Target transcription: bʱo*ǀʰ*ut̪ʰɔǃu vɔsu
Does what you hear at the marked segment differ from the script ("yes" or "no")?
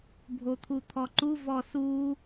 yes